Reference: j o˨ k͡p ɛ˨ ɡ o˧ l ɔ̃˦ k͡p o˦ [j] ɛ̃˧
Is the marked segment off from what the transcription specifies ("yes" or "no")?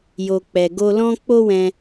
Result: yes